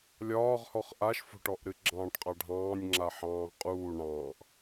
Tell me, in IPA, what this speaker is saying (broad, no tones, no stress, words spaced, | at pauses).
lʲɒːʁhɔχ ʔaʃfo̤ʈɔʔɾɨ ɡ͡ǁɑ̃ːʈqʼɑɖʱɑ̃ːnʲŋ͡ǁa ħɑ̃ːʁqʼuː ɳɑ̃ːʔ